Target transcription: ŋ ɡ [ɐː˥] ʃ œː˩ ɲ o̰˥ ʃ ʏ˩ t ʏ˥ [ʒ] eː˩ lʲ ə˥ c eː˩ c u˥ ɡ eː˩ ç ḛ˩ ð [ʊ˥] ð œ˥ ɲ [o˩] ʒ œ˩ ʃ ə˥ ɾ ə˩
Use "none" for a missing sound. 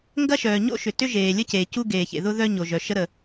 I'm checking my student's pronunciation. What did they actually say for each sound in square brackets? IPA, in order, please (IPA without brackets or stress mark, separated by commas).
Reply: ɐ˥, ʒ, ʊ˥, o˩